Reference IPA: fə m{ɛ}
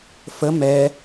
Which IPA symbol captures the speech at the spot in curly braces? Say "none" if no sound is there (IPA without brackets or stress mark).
ɛ